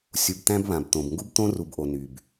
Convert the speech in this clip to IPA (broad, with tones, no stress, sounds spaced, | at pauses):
sʲ u˨ b t̪ æ̃˦ b β ã˨ b t̪ õ˨ b ŋ ɡ u˦ b t̪ õ˦ r u˨ b ʔ o˨ n y˨ b